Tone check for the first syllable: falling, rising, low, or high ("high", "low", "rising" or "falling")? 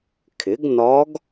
rising